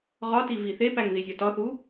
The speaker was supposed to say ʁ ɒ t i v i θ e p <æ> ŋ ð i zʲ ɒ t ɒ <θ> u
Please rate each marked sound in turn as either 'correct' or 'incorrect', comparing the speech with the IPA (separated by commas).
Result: correct, correct